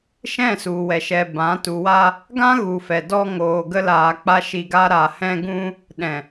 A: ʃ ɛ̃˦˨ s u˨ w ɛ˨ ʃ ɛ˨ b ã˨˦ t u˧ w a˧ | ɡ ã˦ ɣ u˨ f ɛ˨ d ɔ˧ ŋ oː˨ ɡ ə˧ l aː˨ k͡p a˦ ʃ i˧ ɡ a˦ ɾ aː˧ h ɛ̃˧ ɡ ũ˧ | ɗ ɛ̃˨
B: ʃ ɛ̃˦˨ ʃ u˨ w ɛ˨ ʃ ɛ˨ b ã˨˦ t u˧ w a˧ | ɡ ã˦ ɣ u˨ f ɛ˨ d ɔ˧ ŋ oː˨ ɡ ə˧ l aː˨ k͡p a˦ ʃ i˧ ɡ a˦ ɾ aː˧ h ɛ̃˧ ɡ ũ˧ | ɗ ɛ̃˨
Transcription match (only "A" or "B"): A